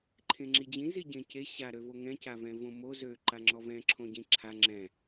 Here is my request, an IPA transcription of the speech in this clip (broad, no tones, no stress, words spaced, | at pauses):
ǃʰẽŋ͡ǁid͡ʑĩ ziɟẽce ɕa ɾøvoŋɛ̃ cavɛ̃võmo zø ǃaŋ͡ǁɔvɛ̃ ǁʰõɟĩǁʰa ŋ͡ǁɛ̃